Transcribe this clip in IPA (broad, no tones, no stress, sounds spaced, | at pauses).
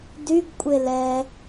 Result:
d y ɡ kʷʼ e l ɛ